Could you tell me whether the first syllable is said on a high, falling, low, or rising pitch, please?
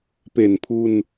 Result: low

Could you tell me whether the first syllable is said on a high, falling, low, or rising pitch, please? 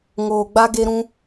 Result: low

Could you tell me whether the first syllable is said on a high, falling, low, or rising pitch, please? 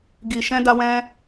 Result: low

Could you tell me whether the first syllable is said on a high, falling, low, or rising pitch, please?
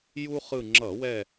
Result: high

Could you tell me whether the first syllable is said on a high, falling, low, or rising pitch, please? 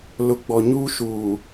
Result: low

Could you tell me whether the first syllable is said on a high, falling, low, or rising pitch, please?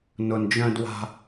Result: low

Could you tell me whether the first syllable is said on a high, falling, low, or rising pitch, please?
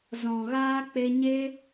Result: low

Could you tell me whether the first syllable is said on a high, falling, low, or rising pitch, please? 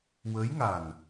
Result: rising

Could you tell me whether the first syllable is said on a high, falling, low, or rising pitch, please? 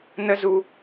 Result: high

